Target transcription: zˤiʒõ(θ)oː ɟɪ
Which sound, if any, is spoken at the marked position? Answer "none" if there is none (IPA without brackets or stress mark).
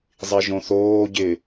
θ